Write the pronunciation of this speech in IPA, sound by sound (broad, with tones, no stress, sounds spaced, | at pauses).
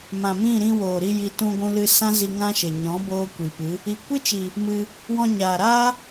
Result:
m ã˨ m ĩ˦˨ ɾ ĩ˧ w oː˨ ɾ i˧ j i˧ t ũ˧ ɡʷ ũ˧ l ɨ˧ s ã˦ z i˧ ŋ ã˦ ʃ e˨ ɲ ɔ̃˨˦ b oː˦ kʷ i˨ p ɨ˨˦ | i˨ kʷ ɨ˦ t͡ʃ i˨ | m ɨ˧ | w ɔ̃˧ ɲ aː˨ ɾ aː˦